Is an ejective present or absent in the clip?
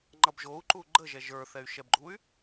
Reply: absent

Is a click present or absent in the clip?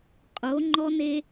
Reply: present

